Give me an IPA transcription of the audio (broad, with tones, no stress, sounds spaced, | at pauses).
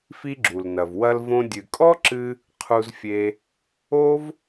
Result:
f i˥ ɡ͡ǁ u˩ l n ɐ˩ v w ɐ˧ l v õ˧ dʲ ɨ˩ kʼ ɔ˥ ǁ ɨ˧ | qʰ u˧ z fʲ e˧ | o˥ v